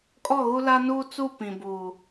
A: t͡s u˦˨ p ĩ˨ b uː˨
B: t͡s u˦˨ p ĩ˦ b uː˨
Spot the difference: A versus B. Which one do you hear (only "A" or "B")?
A